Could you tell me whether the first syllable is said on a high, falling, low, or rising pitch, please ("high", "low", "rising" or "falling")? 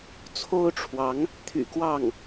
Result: high